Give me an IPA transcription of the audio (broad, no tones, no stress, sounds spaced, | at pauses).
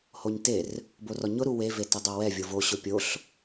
h o ɲ t e r | b o r ɔ ɲ ʊ ɾ u w e v e t ə dˤ o w ɛ vʲ o v o ɕ ʊ pʲ o ɬ